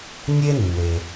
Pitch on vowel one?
high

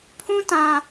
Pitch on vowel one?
high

